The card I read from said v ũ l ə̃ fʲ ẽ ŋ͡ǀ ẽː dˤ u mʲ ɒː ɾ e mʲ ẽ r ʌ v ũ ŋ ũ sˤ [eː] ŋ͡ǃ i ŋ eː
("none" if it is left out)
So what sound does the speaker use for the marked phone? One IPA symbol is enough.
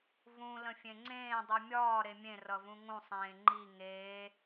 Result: ẽː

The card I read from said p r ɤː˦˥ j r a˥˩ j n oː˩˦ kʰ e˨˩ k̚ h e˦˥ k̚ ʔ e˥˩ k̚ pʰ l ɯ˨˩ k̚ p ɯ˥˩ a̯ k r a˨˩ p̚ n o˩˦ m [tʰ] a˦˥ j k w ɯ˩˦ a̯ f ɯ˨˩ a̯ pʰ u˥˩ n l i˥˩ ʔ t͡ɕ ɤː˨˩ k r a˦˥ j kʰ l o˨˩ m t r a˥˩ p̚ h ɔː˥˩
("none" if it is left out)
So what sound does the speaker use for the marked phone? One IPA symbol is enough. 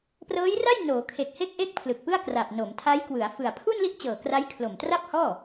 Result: tʰ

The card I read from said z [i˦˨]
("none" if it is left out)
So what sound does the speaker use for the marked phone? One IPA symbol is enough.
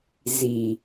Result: i˨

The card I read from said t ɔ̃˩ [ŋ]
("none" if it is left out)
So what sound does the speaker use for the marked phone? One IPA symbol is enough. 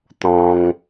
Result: ŋ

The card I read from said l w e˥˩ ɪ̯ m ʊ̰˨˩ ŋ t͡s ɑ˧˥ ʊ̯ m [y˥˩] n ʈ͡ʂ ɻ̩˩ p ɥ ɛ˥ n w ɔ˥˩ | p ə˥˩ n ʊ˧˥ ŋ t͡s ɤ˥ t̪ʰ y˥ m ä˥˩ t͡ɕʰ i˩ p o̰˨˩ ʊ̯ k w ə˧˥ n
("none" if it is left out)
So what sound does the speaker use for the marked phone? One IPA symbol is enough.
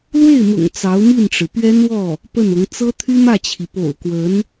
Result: i˥˩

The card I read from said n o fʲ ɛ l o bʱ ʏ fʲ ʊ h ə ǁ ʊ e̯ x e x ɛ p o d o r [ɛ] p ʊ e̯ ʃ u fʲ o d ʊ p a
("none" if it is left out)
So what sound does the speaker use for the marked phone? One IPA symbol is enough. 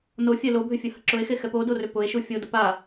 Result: ʏ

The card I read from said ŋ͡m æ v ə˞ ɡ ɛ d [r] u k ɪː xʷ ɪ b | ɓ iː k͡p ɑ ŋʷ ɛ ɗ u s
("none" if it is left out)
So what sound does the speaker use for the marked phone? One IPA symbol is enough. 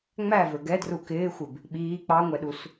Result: r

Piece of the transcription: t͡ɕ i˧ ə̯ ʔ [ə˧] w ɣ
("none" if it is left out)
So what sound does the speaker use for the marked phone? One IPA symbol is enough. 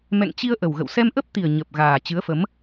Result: ə˨˩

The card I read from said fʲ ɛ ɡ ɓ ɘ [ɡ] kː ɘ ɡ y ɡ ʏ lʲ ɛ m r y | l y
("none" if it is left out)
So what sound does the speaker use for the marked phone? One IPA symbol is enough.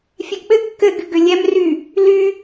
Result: ɡ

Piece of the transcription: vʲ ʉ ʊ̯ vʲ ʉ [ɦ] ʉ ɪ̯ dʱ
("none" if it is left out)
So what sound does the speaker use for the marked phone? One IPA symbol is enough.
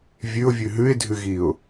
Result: ɦ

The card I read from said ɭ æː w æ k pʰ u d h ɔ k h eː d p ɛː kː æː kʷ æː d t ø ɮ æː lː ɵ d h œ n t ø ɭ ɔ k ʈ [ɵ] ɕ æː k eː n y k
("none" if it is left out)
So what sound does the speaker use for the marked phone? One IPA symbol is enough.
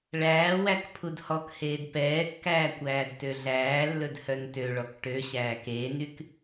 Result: ø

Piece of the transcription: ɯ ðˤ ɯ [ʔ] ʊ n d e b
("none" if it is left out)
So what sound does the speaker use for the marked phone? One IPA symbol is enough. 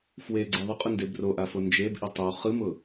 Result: qʼ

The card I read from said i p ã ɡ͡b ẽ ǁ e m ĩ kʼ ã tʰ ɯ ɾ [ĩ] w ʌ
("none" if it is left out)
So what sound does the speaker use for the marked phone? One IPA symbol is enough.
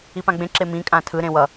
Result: ẽ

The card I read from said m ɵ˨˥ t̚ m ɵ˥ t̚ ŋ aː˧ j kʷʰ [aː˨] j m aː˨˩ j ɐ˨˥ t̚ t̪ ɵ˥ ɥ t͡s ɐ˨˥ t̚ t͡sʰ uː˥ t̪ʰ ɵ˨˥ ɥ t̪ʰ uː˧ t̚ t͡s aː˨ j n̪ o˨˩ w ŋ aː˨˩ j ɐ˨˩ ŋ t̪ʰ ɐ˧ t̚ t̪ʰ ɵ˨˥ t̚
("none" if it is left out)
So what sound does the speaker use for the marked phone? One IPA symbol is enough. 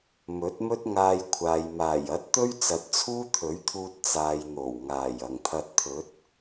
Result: aː˨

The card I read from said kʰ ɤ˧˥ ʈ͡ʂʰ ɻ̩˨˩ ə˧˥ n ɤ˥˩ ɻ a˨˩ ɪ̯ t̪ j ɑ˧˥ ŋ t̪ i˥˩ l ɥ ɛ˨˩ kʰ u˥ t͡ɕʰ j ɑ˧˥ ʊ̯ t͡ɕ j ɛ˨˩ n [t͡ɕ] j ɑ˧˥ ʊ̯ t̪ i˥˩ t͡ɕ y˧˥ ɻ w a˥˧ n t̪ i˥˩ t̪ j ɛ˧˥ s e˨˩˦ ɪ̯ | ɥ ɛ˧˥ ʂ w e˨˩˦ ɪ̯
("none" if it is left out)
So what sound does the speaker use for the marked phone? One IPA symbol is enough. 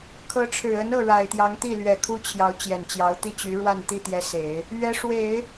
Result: t͡ɕ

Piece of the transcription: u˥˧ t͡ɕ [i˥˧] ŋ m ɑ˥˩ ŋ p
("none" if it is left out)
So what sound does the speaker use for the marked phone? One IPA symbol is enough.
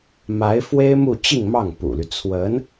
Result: i˥˧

